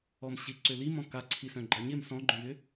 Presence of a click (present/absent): present